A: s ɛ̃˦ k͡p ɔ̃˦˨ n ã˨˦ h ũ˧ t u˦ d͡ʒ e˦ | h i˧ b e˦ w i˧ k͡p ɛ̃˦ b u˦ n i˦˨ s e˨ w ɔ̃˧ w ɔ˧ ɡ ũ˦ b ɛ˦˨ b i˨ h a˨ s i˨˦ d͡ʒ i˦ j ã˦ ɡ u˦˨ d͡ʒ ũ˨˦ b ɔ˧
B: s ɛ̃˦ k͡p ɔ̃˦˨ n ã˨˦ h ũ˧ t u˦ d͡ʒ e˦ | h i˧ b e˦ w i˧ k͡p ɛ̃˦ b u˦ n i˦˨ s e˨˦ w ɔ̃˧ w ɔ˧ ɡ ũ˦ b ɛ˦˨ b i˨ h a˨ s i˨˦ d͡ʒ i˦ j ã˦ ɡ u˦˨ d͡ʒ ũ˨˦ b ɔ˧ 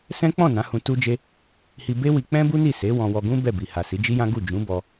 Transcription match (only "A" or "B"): B